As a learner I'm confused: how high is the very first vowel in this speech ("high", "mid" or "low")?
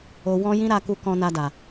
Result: mid